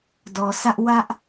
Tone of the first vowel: low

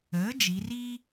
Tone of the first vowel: rising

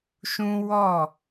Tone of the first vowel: high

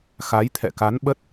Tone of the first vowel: rising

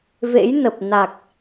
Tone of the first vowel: rising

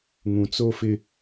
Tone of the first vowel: low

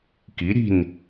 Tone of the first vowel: rising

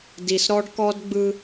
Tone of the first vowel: low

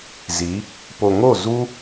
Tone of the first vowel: rising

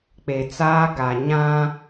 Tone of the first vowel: low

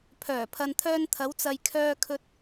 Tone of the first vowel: low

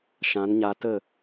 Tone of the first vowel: rising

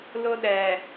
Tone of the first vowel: high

